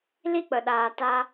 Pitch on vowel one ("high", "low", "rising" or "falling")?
high